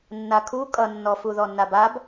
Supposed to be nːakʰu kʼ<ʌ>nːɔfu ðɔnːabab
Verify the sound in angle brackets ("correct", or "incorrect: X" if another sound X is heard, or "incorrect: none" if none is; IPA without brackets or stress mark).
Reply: correct